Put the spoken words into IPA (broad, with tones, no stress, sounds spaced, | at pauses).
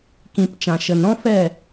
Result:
k ĩ˨ p t͡ʃ ã˨ ʃ ə˨ n ɾ ɔ̃˦ f ɛ˦˨